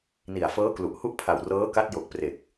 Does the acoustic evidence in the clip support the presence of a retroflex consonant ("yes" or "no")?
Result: no